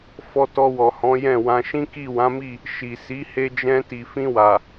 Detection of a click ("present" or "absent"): absent